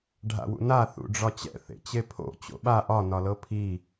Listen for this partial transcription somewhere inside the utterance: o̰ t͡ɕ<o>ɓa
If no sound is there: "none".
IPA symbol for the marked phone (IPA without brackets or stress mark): o̰